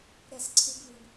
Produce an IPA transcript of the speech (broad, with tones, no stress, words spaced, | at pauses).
ɾɛ˥˩sǀʰɨ˦˥ɡβɨ˧n